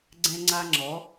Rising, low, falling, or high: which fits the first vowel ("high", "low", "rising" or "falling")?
high